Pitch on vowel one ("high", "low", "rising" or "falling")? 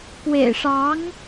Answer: low